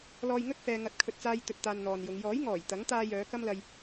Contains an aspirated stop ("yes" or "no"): yes